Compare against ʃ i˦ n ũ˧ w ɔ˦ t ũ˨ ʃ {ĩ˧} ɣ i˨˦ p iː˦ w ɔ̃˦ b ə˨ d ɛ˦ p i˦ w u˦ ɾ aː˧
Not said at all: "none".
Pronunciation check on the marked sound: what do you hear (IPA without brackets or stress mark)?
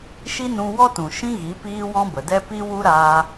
ĩ˦